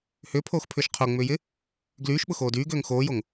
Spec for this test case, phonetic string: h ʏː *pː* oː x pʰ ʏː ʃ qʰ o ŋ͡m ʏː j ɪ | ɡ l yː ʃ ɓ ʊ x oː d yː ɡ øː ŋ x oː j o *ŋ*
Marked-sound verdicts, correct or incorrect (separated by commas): incorrect, correct